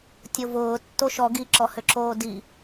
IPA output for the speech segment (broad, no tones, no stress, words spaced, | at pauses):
tʲovʊː tːoʃɔ ɡiǁɔhʏǁoː di